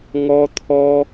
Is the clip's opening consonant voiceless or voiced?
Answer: voiced